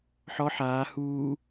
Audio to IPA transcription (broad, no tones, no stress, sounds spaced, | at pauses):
ħ ɔ ħ aː h uː